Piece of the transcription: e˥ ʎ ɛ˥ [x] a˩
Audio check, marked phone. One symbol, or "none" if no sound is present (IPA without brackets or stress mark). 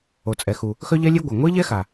x